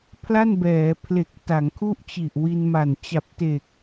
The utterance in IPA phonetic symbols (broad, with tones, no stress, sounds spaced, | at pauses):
pʰ l a˥˩ n b ɛː˩˦ pʰ l e˨˩ k̚ t a˩˦ ŋ kʰ u˥˩ ʔ t͡ɕ i˨˩ ʔ w i˧ n m a˨˩ n t͡ɕ a˨˩ p̚ t e˨˩ k̚